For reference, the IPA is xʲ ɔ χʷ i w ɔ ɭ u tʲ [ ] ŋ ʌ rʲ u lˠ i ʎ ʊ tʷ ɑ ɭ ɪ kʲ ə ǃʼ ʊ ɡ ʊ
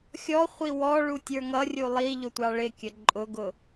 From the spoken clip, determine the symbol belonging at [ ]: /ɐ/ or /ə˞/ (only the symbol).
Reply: ə˞